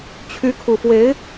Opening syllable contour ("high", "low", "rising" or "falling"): rising